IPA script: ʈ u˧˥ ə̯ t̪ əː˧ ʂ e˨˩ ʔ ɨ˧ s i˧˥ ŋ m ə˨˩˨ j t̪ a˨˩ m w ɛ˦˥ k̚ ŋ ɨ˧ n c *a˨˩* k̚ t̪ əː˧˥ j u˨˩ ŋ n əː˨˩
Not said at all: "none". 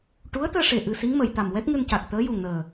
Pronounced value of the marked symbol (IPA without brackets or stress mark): a˨˩